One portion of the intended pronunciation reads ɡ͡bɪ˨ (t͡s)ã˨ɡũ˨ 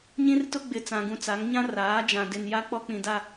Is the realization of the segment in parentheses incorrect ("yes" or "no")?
no